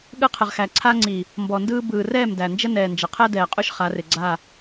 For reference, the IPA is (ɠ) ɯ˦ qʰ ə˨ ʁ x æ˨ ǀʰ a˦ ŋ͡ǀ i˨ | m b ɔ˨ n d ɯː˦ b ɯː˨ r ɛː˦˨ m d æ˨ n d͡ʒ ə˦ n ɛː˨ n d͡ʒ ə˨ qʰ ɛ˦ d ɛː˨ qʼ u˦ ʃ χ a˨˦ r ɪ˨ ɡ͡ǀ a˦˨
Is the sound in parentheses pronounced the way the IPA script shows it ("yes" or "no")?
yes